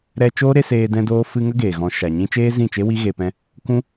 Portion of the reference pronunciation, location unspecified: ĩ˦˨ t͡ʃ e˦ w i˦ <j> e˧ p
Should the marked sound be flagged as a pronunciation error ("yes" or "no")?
yes